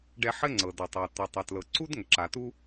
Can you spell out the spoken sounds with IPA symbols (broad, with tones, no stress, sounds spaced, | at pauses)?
ɖ ɛ˧ ħ ɘ˥ ŋ͡ǀ ɤ˩ d ʌ˩ tˤ ɤ˩ t̪ ə˩ tˤ ɛ˩ t l ɤ˩ ǀ u˥ d ŋ ə˩ ǁ a˩ t u˥